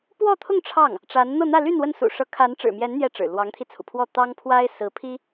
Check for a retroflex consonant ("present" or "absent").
present